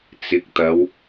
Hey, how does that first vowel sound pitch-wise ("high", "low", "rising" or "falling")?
rising